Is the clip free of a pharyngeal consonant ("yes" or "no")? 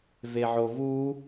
no